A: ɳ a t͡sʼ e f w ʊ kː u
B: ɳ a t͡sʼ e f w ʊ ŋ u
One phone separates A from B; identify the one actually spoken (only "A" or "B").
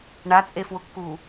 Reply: A